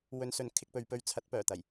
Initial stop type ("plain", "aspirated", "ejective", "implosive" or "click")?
aspirated